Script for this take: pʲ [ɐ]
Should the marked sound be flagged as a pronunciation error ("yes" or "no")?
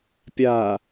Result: yes